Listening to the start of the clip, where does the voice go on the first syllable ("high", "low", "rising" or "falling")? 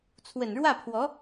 low